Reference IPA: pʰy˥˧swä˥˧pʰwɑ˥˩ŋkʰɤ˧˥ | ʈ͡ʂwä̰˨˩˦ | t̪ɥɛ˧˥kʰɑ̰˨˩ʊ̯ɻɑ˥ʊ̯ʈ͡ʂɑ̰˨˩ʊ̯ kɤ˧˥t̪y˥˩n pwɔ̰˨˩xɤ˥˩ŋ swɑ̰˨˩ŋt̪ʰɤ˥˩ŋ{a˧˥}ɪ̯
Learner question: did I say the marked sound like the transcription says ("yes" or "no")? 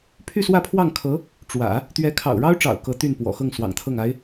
yes